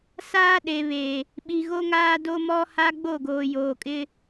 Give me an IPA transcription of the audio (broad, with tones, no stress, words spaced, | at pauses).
saː˦ɗe˨βe˨ | ɓi˨ɣo˦ŋaː˦ do˦mɔ˦ha˦ ɡ͡bo˦˨ɡoː˨joː˨kʼɪ˦